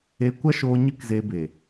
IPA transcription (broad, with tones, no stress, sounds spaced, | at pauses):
e˧ kʷ a˦ ʃ oː˧ ɲ ɨ˦ k z e˧ b e˨